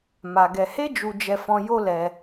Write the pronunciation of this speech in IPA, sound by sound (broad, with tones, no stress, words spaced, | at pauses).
ma˧ɡɛ˧ he˦d͡ʒu˧d͡ʒɛ˧fɔ̃˧ jo˦lɛ˧